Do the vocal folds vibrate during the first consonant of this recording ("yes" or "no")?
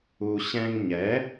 no